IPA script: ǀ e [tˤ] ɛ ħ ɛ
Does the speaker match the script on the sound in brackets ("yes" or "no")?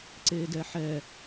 no